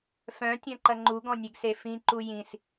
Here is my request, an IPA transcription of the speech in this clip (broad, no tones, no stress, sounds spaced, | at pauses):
f œ̃ tʲ ɐ̃ ǃ ɐ ŋ͡ǃ u ɡ ɔ̃ nʲ e ɡ s e f ĩ ǃ u j ĩ s